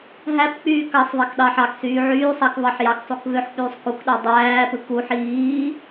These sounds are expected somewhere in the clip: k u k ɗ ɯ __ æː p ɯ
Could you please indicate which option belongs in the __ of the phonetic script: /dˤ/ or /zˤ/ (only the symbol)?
dˤ